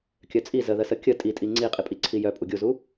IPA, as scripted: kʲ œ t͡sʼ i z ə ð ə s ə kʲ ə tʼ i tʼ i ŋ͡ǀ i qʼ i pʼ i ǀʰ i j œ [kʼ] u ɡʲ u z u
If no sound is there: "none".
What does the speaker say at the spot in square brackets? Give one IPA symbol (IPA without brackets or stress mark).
pʼ